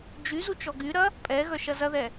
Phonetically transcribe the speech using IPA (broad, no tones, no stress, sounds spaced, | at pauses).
d͡ʒ y z u t͡ʃ ɔ ɡ y ɾ ɐ | pʼ ɛ ɣ œ ʃ ɐ z ɐ ð ɛ